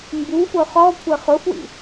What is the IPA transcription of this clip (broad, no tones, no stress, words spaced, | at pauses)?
mbufʊ χɔ kʷʰɜχʊfwḭ